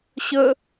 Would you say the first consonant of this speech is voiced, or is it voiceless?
voiceless